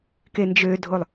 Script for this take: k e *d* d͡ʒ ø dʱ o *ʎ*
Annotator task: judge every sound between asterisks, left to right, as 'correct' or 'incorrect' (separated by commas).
incorrect, incorrect